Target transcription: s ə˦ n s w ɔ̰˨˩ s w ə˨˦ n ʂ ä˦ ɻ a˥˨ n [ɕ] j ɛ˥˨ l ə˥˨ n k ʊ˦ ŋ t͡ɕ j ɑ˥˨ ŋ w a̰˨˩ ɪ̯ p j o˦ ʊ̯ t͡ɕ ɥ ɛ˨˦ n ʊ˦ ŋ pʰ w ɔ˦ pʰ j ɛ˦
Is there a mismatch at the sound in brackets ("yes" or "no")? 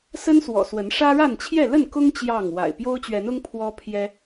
yes